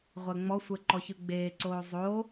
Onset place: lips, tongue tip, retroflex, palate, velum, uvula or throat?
uvula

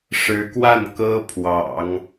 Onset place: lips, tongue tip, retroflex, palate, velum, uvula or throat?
retroflex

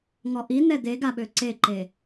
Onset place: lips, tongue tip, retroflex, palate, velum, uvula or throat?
velum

